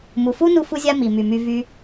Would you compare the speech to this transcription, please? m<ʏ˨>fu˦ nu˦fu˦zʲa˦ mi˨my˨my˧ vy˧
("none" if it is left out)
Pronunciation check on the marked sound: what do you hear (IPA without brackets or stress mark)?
u˨